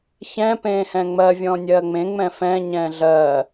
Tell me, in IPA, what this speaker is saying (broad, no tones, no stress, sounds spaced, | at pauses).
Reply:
ç ɛ̃ p ẽː h ɛ̃ ŋ͡m ɜ vʲ ɔ̃ nʲ ɜ ŋ͡m ẽ ŋ͡m ɛ̃ f ɛ̃ ɲ ɛ̃ː ɮ ɜ